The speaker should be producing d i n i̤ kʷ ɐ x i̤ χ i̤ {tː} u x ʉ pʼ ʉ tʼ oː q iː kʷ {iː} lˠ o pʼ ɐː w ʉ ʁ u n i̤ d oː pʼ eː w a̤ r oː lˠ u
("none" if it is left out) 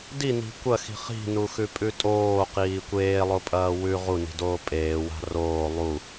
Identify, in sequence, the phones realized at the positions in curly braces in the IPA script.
n, eː

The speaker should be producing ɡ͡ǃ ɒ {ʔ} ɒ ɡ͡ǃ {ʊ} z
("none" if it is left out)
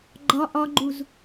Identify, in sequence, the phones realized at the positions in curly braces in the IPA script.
ʔ, u

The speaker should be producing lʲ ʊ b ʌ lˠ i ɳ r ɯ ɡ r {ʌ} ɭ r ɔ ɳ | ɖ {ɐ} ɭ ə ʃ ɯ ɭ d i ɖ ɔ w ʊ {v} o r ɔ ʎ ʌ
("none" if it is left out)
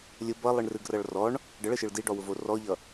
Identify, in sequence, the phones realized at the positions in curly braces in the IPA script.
ʌ, ə, v

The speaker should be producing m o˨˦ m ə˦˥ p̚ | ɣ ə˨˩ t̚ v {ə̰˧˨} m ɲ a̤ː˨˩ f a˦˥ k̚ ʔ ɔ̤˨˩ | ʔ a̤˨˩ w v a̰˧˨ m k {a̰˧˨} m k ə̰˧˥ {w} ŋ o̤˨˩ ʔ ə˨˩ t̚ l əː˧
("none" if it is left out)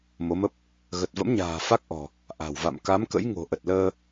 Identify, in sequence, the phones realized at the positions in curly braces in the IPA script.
ə̰˧˥, a˨˦, j

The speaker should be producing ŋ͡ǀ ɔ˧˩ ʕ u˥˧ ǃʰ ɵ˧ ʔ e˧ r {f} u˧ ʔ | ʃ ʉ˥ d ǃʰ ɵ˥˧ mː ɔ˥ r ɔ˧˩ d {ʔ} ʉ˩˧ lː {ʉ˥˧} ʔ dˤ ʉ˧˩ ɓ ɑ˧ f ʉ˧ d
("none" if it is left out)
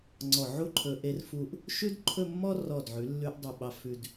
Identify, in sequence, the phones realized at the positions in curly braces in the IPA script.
f, ʕ, ʉ˧

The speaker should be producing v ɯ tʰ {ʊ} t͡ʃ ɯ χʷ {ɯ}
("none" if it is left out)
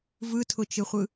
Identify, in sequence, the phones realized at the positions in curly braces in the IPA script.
ʊ, ɯ

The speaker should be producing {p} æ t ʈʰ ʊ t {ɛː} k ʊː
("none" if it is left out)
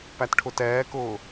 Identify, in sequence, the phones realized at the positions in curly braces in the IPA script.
p, ɛː

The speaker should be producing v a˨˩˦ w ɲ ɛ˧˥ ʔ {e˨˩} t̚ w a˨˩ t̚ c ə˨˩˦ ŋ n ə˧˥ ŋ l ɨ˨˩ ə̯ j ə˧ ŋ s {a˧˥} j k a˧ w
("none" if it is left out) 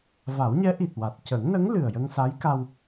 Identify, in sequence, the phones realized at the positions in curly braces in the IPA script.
i˨˩, a˧˥

